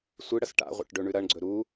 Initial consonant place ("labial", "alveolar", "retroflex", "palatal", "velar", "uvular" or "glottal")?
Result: alveolar